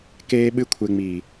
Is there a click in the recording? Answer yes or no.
no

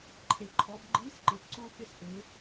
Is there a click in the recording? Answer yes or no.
yes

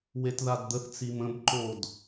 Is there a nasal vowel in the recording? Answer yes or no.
yes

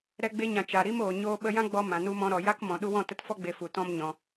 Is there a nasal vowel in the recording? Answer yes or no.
yes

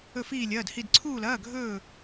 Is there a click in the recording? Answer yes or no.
yes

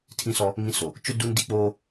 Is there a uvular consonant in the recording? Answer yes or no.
no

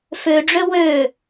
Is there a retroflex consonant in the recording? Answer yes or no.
yes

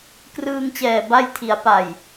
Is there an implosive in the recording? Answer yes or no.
no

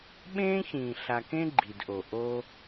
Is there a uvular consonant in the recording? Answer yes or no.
no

